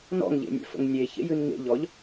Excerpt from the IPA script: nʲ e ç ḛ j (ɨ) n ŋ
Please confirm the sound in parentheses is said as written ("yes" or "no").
yes